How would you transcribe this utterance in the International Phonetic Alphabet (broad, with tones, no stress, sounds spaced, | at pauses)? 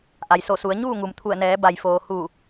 ʔ a˩ j s o˧˩ s u˩˧ ə̯ ɲ uː˥˨ ŋ u˩ m t̪ʰ u˧˩ ə̯ n ɛː˩˧ b a˩ j f oː˩ h u˧˩